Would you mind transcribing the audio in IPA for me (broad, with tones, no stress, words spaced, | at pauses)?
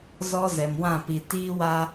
zɔ˦zɛ˨mwã˦˨pi˨ tiː˦wa˦